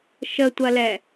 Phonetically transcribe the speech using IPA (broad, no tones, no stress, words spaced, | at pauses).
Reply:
ʃətʷɐlɛ